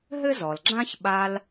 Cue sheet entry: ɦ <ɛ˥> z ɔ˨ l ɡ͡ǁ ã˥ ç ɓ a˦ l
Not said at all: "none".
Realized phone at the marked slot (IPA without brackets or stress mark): ɘ˥